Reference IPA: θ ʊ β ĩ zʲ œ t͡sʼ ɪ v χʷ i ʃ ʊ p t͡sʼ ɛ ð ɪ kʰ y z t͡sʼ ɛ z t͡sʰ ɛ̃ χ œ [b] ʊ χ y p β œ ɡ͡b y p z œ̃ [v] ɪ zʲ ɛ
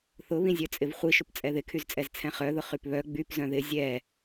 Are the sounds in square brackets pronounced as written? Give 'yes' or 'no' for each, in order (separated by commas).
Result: no, no